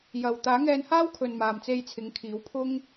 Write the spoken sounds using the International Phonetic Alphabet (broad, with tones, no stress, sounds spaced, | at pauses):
j ɐ˨ w t̪ aː˨˥ ŋ ɛː˧ n h aː˥ w kʰ ɵ˨ n m aː˨ m t͡s e˧ j t͡sʰ ɪ˨˥ ŋ kʰ iː˨˥ w pʰ ʊ˥ ŋ